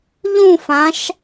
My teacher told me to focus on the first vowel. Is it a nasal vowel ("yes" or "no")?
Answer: yes